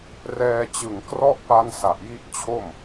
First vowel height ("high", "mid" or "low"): mid